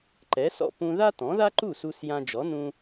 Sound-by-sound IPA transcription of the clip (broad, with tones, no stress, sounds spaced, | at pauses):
ǃ ɛ˩˥ s ɔ̰˥˩ p ũ˧ ð a˥ t ɔ̃˩˥ ð a˥ ǃ u˥˩ s u˧ s j ã˧ d͡ʒ ɔ˩˥ n ũ˧